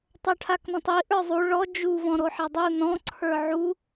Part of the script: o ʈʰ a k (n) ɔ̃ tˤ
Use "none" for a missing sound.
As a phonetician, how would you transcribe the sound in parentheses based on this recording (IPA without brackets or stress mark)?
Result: n